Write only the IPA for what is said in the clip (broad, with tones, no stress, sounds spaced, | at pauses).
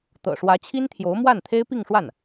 t̪ ɤ̰˨˩ ʂ w ä˧˥ t͡ɕʰ i˥ n t̪ʰ j o˧˥ ʊ̯ m w a˥˩ n t̪ʰ e˥ ɪ̯ p i˥˧ ŋ ʂ w a˥˩ n